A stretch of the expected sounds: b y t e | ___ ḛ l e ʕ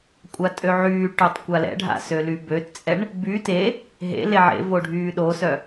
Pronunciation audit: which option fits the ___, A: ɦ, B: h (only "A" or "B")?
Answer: A